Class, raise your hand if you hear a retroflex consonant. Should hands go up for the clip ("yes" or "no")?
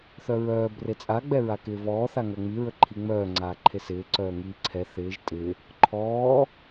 no